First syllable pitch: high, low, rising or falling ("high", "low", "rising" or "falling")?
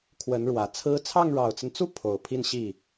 rising